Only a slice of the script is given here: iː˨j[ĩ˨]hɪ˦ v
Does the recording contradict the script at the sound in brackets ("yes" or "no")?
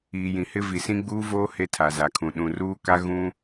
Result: no